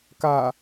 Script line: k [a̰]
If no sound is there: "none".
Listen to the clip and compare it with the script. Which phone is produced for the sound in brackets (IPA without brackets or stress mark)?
a